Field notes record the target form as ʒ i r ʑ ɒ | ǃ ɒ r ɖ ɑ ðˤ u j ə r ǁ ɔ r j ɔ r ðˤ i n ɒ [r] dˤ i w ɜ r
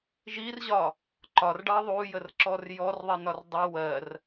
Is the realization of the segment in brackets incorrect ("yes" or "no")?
no